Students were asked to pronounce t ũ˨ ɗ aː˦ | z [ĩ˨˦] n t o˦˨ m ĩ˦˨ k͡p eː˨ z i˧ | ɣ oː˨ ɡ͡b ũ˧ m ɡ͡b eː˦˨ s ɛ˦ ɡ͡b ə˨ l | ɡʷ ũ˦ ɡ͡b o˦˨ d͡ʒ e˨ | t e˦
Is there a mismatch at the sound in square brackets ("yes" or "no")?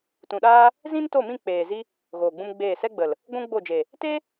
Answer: yes